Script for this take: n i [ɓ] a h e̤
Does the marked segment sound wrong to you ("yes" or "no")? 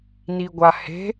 yes